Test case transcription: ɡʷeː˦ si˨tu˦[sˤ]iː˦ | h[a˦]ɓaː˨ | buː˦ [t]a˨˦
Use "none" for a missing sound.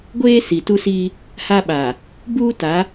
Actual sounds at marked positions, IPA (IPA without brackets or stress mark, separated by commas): s, a˦, t